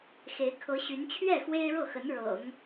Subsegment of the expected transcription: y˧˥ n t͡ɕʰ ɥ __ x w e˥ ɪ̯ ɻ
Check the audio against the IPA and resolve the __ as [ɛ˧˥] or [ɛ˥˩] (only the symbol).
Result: ɛ˥˩